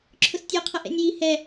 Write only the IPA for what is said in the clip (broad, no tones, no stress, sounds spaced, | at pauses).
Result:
ǁʰ ʊ s tʲ ɔ qʰ ʌ ʔ ɛ̰ nʲ j i h ɛ